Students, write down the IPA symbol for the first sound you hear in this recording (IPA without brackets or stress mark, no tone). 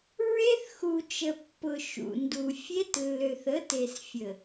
ɹ